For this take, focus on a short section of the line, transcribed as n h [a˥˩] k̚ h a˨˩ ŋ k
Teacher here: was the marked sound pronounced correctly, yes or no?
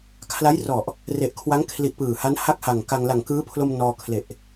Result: yes